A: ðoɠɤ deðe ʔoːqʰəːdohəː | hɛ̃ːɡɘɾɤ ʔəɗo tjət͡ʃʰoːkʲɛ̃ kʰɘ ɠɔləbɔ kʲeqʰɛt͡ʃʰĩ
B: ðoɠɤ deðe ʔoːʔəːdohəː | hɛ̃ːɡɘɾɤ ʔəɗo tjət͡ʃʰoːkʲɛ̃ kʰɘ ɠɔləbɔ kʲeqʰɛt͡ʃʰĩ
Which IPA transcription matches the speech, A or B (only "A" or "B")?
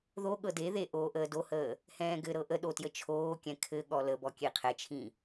B